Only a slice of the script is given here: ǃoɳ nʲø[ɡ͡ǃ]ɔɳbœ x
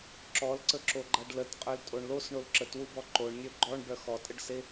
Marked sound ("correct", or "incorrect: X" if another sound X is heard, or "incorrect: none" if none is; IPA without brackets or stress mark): correct